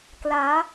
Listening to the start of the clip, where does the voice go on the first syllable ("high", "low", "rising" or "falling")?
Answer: rising